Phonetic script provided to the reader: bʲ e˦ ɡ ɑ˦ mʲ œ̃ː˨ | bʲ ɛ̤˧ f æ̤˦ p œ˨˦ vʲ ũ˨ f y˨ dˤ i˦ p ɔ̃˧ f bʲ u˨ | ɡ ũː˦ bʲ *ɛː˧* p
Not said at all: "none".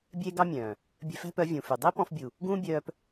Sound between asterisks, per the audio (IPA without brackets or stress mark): œː˧